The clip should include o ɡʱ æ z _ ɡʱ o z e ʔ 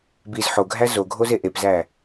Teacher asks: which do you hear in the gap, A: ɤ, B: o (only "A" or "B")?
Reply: B